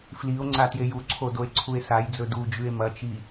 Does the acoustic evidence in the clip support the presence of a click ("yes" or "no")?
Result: yes